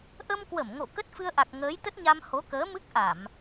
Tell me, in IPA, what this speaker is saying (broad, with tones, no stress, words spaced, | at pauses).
ʔə˧mkwə˧˩mŋo̰˧˨ kə˦˥t̚fɨ˧ə̯ʔa˨˩k̚ ŋəː˨˦jt̪ə˦˥t̚ɲa˧m ho˨˦kəː˨˦mɨ˦˥k̚ʔa˧˩˨m